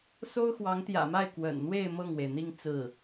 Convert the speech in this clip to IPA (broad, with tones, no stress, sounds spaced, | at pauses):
s o˥ ʊ̯ x w ɑ˧˥ ŋ t̪ j ä̰˨˩ m a˥˩ ɪ̯ k w ə̰˨˩ n n̪ w e˥˧ ɪ̯ m ɤ˥˩ ŋ w e˩ ɪ̯ n̪ i˥˧ ŋ t͡s ɹ̩˥˩